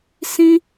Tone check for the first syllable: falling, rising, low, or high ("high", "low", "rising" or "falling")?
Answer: high